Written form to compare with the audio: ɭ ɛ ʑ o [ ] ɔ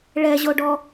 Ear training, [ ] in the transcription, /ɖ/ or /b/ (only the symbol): ɖ